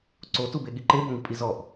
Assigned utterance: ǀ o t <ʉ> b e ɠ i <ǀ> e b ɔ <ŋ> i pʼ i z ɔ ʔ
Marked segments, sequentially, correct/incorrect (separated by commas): incorrect, incorrect, correct